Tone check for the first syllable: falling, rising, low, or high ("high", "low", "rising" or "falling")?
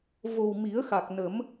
low